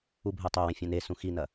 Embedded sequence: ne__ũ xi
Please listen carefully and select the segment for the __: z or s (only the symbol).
s